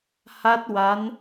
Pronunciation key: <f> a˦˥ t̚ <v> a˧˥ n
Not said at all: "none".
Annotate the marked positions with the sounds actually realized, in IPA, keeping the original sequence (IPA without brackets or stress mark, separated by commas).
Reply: h, w